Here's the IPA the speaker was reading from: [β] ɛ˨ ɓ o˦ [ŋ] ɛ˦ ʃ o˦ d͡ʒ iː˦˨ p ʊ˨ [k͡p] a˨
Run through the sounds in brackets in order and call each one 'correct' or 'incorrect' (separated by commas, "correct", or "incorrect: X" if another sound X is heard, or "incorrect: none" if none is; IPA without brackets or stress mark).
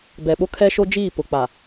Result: incorrect: b, incorrect: kʰ, correct